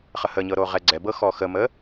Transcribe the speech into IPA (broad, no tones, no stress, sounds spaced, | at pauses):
χ ə h ə ɲ ɤ ɾ o ʁ ɛ ɡ͡ǀ ɛ b ɤ x ɔ x ə m ə